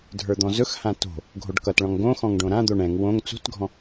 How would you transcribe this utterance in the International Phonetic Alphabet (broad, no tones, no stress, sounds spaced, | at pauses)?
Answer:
dʱ ə˞ d̪ ɔ̃ z ɵ x h ã t o̤ | ɡʱ o ɖ k ʌ t ɭ ɔ̃ ŋ ɡ õ x ɔ̃ ŋ ɖ õ ɾ ã d̪ o ɳ ɛ̃ ŋ w õ ŋ t͡s ṳ t ɡʱ ɔ̃